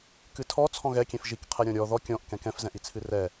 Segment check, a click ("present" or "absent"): absent